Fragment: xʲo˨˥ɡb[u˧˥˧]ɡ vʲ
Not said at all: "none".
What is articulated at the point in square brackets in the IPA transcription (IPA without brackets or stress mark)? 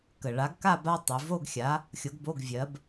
o˧˥˧